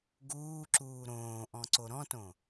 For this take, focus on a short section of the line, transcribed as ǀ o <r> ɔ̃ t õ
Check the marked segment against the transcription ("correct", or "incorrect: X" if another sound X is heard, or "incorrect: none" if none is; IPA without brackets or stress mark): incorrect: ɾ